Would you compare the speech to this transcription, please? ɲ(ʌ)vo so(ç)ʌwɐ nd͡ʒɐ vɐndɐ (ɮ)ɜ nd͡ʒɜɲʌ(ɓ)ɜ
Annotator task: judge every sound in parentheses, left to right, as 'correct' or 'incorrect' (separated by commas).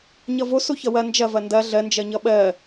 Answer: correct, correct, correct, correct